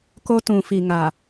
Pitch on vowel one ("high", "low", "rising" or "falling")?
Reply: high